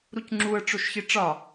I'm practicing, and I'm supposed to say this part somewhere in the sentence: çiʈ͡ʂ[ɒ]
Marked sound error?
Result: no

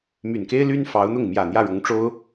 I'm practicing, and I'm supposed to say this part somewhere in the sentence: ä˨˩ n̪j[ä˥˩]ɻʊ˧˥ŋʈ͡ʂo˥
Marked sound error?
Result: no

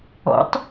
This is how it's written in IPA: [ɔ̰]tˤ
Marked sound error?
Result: no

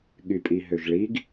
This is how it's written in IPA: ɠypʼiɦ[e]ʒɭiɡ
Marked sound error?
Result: yes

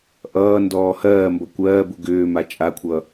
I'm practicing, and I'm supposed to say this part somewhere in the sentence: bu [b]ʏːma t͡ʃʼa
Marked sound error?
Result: yes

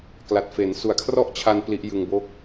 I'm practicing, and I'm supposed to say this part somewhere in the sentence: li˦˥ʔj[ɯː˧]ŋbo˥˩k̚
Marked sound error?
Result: yes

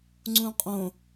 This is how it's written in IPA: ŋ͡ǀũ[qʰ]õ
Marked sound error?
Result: yes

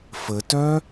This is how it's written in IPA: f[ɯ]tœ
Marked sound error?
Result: yes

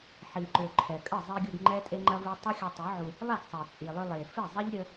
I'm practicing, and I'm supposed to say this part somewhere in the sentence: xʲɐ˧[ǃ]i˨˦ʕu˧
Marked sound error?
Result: yes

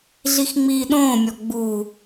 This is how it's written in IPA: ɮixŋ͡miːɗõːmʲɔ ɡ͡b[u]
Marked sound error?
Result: no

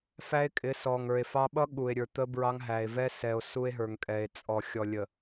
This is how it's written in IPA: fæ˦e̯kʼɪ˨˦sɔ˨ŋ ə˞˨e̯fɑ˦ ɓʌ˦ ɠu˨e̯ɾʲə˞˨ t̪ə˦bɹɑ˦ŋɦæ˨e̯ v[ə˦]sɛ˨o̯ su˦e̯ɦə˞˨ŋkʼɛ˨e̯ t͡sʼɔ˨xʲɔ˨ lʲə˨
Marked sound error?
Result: yes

